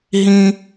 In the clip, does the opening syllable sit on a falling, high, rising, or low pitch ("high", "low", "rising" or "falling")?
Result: high